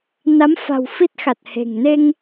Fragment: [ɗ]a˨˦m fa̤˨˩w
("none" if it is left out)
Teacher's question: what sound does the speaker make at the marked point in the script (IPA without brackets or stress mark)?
n